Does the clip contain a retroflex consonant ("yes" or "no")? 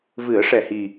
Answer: yes